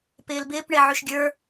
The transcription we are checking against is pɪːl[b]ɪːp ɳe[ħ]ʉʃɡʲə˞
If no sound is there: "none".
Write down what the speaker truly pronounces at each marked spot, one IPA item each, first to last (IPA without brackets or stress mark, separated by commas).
b, ʕ